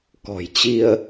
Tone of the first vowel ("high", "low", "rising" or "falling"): low